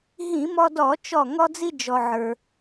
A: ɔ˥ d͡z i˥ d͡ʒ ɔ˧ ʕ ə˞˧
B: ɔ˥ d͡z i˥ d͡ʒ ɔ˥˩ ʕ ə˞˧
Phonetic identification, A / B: A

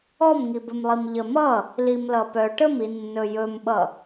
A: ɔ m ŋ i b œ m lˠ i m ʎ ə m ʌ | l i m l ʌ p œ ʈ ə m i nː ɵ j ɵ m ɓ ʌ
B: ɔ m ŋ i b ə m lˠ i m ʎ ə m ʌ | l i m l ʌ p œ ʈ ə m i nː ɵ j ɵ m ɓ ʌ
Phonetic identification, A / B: B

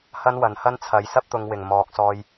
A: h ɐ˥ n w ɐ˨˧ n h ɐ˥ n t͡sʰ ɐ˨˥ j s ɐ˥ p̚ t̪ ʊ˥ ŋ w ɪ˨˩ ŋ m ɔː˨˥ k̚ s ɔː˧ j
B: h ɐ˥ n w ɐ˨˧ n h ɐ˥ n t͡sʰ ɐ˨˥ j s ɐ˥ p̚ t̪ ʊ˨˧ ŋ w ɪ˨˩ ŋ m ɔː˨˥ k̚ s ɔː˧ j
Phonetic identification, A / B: B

